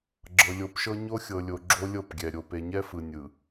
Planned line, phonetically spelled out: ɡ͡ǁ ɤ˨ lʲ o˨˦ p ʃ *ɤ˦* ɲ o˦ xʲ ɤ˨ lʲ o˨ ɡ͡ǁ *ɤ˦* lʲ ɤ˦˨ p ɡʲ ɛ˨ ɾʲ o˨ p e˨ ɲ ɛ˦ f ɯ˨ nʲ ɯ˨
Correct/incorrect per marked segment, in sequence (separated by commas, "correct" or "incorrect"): correct, incorrect